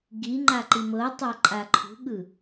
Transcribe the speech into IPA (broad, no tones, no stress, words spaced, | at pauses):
ɡiŋ͡ǃa ǃimɤtˤa ǃʼaǃʰṳɠɯ